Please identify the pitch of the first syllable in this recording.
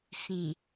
low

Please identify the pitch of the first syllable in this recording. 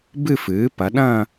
falling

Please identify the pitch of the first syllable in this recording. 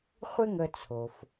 high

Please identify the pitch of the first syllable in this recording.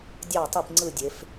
falling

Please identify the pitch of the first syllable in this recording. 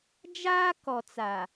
high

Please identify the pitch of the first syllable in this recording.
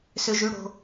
high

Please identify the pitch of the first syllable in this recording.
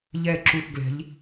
falling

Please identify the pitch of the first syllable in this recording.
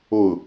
falling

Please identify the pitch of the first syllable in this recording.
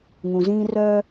low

